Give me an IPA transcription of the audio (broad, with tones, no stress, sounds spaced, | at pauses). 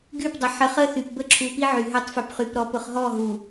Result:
ɡ y˦˨ p dˤ ə˨ ħ ə˨ χ ə˦ θ y˨ p b ə˦ ǁʰ u˨ p i˦ ʕ y˨ ɦ ø˦ tˤ f ø˨ p χ y˨ p ɾ ɔ˨ p ʊ˨ χ ɦ ɔ˦˨ ɦ u˨